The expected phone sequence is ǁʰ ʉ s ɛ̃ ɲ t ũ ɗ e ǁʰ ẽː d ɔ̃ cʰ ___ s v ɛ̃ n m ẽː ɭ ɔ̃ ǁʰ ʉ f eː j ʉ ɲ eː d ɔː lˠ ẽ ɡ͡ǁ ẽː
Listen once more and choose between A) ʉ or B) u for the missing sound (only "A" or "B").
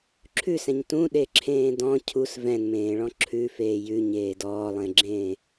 B